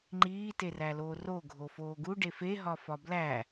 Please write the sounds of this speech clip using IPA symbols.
ŋ͡ǃ iː t e r æ l oː r o ɡʱ o f oː ɡ u ɖ e f e ɦ ɒ f ɒ b l æ

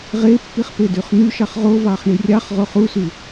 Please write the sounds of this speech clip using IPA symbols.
ʁ e pː i χ p e d y χ n̪ y ʃ ɑ χ ʁ o v ɑ χ ɳ i rʲ ɑ χ ʁ o χ u s y

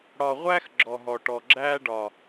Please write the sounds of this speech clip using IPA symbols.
ɽ ɒ˨ ʁʷ æ˦ x ɡ͡ǁ ɔ˨ ɦ ɔ˨ ʈ ɔ˨ ɡ͡ǁ æ˦ ɖ ɒ˨

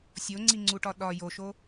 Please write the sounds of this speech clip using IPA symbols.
sʲ o ŋ͡ǀ i ŋ͡ǀ u ʈ ɒ ɗ ɒ j o ʃ o

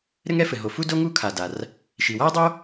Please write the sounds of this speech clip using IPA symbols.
ɾ ɘ˥ ŋ ɛ˥ f ɘ˩ ɦ o˩ f u˥ d o˥ ŋ u˥ kʰ a˩ d a˩ r | ʃ i˩ w a˥ ə̯ dˤ o˥

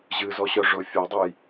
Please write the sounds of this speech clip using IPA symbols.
ʑ ɨ z ɔ ɕ œ ʐ ʊ fʲ ɔ dˤ ɨ j

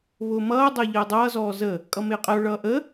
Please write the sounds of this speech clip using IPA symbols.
β ʊː m ʌː dˤ əː ʎ əː dˤ ʌː z ɔː z ə | kʼ ʌ m ɪː qʼ ə o̯ ɭ ʌː ʔ ə

